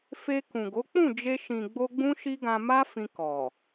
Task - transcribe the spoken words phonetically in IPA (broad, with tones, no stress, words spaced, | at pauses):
fe˧kũ˨ɡo˨˦ k͡pũ˦˨d͡ʒe˧ ʃĩ˨ɡ͡bo˧ ɡ͡bũ˦ʃi˦ɡã˧ ma˦fĩ˧ kɔ˨